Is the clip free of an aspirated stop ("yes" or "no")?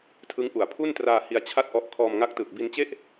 no